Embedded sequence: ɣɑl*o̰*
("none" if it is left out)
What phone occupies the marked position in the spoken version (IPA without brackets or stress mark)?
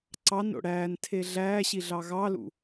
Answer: ṵ